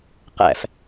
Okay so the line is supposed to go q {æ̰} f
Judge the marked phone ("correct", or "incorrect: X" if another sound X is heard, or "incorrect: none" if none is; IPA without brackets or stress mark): correct